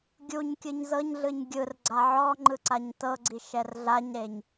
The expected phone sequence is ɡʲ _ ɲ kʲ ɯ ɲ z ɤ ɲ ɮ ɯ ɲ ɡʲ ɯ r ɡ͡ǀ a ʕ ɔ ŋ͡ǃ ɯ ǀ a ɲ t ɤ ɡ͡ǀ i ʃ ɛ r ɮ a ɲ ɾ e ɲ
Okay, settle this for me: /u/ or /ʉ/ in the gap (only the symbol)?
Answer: u